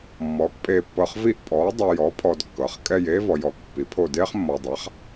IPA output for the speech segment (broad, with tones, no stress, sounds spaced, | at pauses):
mː ɔː˩˥ k pʼ eː˨ pː ɤ˨ χ v i˦˨ ʔ pʼ ɔː˩˥ dˤ u˨ j ɔ˩˥ pʰ ɔ˨ d kː ɤ˩˥ χ kʼ ɛ˦˨ j eː˥ v ɔ˨ j ɔː˩˥ k pː i˩˥ pʰ o˦˨ d eː˥ χ mː ɔ˨ dˤ a˩˥ χ